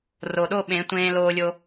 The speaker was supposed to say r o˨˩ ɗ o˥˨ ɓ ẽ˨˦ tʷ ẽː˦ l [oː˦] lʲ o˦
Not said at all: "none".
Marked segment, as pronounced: oː˦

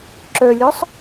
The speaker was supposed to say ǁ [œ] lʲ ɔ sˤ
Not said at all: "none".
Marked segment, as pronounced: œ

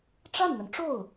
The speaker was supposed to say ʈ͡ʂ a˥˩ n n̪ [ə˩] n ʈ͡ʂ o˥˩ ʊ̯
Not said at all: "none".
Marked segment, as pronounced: ə˩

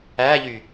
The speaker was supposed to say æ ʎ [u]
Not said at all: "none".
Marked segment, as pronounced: y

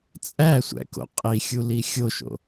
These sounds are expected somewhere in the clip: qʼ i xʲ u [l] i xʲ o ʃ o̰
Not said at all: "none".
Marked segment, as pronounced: l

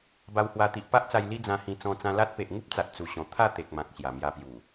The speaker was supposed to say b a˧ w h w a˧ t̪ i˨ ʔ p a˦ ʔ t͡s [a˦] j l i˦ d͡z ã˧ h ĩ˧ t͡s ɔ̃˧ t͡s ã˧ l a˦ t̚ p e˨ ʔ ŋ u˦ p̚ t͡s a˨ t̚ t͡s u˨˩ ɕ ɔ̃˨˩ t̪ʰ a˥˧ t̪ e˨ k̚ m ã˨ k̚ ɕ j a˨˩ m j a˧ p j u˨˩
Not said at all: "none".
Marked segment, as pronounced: a˧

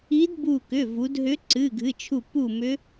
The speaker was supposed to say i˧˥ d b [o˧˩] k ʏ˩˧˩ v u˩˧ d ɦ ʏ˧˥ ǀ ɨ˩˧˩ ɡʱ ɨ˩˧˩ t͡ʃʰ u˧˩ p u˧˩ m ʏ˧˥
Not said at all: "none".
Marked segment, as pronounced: u˧˩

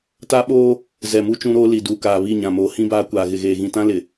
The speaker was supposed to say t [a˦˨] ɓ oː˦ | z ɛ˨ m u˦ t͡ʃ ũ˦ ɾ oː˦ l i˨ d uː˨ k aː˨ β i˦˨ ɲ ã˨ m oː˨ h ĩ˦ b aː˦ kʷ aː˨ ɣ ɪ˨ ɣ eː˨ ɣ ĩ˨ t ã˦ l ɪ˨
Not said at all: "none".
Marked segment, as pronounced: a˦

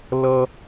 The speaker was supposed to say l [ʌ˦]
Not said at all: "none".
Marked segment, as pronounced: ʌ˦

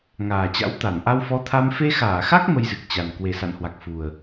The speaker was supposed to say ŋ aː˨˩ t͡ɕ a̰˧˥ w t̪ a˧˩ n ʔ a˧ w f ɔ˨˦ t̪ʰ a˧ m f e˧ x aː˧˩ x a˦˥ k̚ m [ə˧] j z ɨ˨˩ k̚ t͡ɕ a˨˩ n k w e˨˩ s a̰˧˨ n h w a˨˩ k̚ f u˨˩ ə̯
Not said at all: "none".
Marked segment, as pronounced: ə˧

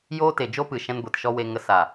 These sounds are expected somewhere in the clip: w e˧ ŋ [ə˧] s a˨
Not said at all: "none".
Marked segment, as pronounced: ə˧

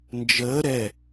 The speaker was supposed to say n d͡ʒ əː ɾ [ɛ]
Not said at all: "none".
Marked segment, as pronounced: ɛ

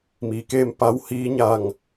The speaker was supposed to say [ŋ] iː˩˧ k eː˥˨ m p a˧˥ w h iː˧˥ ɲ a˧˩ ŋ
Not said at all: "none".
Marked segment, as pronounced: m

